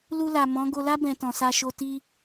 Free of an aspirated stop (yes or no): yes